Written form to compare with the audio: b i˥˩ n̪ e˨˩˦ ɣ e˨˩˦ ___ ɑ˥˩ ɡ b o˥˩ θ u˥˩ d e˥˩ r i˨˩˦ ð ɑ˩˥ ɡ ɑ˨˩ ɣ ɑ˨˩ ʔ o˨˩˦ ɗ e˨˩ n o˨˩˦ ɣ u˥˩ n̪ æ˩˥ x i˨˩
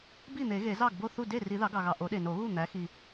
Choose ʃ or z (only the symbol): z